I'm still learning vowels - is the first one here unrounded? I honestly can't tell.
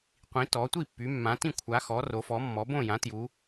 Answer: yes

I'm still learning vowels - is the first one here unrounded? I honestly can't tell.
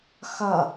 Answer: no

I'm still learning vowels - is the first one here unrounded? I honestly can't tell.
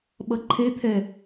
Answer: yes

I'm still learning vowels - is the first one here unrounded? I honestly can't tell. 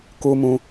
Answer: no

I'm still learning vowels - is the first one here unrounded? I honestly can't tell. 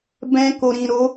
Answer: yes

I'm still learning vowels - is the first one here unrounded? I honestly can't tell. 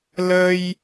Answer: yes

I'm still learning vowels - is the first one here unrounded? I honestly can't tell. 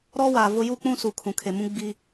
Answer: no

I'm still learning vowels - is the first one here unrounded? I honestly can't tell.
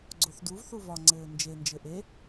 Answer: no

